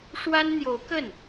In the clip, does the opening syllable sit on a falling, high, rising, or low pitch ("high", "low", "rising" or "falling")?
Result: high